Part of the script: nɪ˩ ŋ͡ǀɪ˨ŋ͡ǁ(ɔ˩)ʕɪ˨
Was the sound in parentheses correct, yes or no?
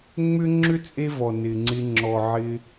yes